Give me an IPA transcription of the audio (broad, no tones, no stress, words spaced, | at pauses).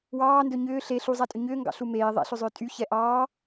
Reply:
wɑːndɵ ɲʏː ɬe ɬuzˤatʼʏ ɲʏːŋɡɑ̰ɬu meː ðˤɛ̰ɬʏzˤʏː tʼyçɛ ʔɑː